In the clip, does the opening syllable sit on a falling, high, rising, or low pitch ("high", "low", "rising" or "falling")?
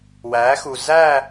rising